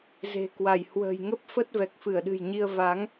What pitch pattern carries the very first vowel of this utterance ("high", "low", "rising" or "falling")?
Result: low